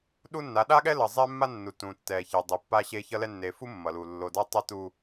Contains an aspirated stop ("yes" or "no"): no